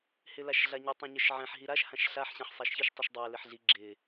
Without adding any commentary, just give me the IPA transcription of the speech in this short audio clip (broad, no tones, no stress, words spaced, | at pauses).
hɪlaʃɮaɲi tˤɛ̃ɲəʃʕɛ̃ħ ɦiɾaʃ hãʃɬaħ ɕɛ̃ħsˤaʃçiʃ tˤiʃdˤæ lɪħɮi ɡ͡ǁɪ